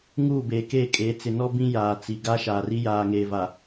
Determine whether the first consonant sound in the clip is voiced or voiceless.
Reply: voiced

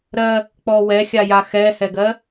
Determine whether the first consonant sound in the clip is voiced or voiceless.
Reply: voiced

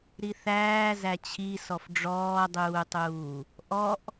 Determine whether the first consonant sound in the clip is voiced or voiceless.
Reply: voiced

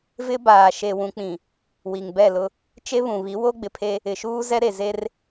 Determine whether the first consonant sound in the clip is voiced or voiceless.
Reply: voiced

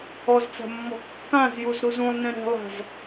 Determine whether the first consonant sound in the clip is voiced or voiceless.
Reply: voiced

